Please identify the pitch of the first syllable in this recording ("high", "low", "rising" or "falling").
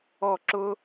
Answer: falling